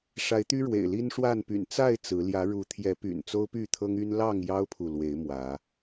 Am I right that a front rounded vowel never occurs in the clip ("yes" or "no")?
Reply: no